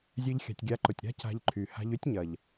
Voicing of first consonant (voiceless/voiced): voiced